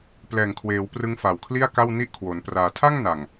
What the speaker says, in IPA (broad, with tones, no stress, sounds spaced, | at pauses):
p l ɛː˨˩ ŋ kʰ w eː˩˦ w p r ɯ˦˥ ŋ f a˨˩ w kʰ l i˥˩ a̯ k a˥˩ w n i˥˩ ʔ kʰ w o˩˦ n p r aː˩˦ tʰ a˥˩ ŋ n a˨˩ ŋ